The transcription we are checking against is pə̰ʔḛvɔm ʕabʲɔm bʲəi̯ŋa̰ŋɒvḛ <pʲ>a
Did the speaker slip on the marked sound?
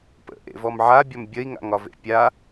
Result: no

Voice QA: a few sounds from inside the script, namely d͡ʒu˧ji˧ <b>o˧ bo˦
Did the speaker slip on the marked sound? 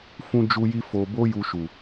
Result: yes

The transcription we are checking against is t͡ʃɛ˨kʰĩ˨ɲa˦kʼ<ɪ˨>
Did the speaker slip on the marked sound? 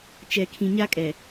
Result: yes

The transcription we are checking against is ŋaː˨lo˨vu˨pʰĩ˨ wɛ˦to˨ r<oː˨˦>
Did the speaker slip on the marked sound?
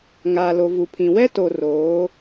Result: no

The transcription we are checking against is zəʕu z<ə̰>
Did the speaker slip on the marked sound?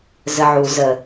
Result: yes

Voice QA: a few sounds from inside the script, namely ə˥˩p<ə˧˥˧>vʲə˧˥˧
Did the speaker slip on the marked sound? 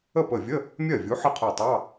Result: yes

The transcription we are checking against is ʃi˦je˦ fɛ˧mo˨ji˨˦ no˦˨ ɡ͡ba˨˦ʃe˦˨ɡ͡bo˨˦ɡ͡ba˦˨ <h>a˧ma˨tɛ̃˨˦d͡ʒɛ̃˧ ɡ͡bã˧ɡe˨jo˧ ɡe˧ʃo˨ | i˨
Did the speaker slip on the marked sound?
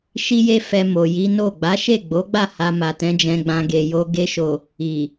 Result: no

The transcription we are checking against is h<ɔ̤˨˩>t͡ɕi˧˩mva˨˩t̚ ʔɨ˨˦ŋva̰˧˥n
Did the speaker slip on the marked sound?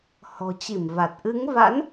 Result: no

